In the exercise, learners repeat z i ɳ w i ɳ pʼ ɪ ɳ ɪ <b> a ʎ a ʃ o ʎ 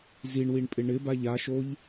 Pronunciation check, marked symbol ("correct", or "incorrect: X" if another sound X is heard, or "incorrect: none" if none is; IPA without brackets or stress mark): correct